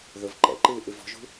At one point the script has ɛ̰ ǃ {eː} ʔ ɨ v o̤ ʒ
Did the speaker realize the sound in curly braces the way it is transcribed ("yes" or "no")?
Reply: no